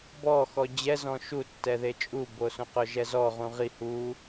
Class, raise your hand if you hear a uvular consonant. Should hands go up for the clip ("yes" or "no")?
yes